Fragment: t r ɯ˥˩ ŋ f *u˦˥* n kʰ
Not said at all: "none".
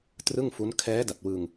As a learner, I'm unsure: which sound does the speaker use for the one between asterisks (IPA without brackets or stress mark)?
u˦˥